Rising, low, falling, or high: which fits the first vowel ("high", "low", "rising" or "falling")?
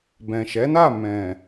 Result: low